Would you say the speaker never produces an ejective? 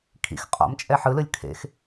no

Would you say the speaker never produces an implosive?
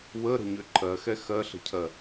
yes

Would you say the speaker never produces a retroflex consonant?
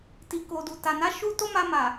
yes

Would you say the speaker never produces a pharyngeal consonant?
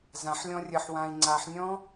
no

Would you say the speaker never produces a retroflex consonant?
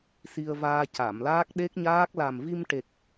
no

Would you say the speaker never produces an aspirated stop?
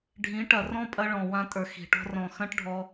yes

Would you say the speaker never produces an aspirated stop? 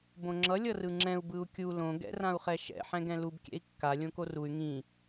yes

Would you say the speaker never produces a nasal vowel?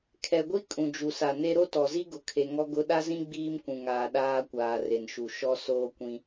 no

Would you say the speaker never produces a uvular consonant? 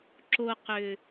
no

